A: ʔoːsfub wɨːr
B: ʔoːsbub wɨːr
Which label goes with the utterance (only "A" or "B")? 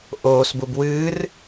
B